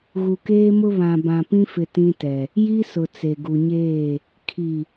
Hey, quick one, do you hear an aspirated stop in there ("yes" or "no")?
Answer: yes